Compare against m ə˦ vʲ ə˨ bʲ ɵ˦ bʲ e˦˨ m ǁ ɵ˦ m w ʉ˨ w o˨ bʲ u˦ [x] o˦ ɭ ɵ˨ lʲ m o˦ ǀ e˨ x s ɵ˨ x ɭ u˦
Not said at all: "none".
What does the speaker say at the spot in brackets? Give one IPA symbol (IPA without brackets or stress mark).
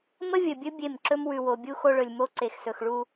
x